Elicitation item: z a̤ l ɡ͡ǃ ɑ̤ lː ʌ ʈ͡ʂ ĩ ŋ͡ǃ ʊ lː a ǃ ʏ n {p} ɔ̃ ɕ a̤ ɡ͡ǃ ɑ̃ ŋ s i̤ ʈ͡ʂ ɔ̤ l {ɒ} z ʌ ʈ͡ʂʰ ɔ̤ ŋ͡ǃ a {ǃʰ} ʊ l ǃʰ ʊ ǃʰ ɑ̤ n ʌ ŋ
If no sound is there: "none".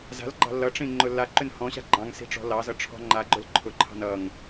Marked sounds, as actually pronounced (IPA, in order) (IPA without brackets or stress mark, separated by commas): h, ɑ, ɡ͡ǃ